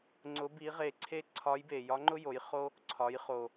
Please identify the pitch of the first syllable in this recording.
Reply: rising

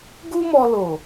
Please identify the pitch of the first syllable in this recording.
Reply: high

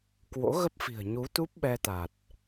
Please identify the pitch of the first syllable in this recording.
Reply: rising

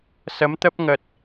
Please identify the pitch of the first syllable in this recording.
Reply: rising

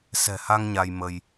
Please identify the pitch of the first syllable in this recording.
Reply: low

